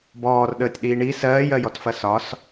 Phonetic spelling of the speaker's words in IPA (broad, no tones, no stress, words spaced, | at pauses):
bɔːrɗəːtʲɗiː ɳi sɜːjɜjɔtfɐ sɒs